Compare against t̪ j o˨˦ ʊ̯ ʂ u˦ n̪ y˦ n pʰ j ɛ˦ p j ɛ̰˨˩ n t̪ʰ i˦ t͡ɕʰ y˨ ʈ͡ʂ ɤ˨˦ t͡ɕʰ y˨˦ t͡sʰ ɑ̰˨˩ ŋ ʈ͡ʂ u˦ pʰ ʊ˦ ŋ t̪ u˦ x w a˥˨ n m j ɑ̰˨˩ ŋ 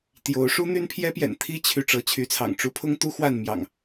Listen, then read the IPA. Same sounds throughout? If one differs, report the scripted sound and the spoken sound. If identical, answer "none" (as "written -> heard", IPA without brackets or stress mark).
none